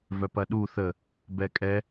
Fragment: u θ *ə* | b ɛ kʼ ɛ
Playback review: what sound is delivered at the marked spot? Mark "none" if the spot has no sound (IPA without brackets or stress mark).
ə